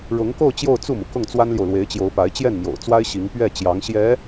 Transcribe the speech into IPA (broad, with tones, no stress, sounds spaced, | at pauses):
ɻ ʊ˧˥ ŋ k o˥˧ ʊ̯ t͡ɕ j o˥˧ ʊ̯ t͡s u˥˩ m u˩ k ʊ˥˩ ŋ t͡s w a˥ n l j o˨ ʊ̯ l w e˧˥ ɪ̯ t͡ɕ j o˧˥ ʊ̯ p a˧˥ ɪ̯ t͡ɕ j ɛ˥˩ n m j o̰˨˩ ʊ̯ t͡s w a˥ ɪ̯ ɕ i˧˥ ŋ p ɥ ɛ˥˩ t͡ɕ j ɑ˧˥ ŋ ɕ j ɛ˧˥